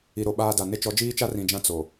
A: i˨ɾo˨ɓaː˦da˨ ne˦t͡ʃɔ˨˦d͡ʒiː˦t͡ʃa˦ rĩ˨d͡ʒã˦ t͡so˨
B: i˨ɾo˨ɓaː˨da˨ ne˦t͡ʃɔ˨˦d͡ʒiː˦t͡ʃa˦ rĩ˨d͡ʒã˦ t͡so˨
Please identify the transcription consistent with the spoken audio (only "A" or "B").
A